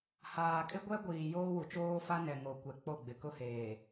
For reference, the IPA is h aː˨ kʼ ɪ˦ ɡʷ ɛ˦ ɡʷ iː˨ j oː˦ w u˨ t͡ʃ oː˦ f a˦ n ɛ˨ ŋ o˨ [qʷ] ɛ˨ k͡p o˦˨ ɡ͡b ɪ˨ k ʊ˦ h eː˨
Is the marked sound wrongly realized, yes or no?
yes